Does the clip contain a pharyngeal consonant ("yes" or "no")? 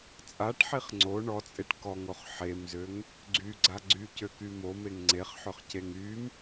yes